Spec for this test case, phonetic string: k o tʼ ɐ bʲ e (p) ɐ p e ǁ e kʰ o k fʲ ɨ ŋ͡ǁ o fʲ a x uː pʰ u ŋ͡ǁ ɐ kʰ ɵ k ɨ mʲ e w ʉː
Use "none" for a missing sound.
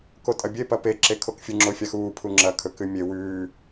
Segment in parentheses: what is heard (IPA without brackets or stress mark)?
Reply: p